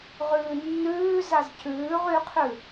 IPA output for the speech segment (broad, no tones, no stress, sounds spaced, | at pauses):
ʁ ʉː nː ʉː z a z c ʉː ʁ y qʰ ʉ